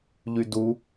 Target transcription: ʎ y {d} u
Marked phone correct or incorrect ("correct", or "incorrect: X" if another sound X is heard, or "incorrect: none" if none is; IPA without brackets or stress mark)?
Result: correct